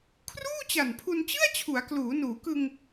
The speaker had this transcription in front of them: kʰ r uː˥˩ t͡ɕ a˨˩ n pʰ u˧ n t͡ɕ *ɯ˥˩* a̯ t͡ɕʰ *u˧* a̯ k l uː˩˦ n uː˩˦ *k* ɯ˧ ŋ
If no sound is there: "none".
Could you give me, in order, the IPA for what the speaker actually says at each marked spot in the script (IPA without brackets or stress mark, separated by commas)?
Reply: ɯ˥˩, u˩˦, k